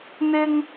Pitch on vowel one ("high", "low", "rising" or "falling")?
high